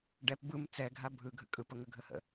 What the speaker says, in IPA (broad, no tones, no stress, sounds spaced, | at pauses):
ɖ ɛ p b ɯ m t͡s ɛ ɡʱ a bʱ ɯ ɡʱ ə̰ kʼ ɯ p ə ŋ ə ɡʱ ə h ə̰